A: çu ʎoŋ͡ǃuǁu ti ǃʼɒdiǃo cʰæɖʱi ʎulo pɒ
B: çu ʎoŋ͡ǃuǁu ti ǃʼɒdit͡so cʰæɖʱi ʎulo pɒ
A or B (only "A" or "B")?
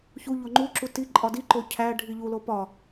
A